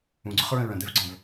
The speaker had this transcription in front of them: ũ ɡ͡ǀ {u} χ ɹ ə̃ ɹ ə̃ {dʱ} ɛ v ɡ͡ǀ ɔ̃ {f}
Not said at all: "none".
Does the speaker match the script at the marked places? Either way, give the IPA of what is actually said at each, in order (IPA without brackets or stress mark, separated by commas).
ʊ, d̪, v